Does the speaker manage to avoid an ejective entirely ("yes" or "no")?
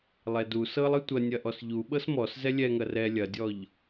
yes